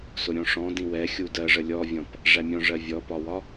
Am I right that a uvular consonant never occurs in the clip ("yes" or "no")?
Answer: yes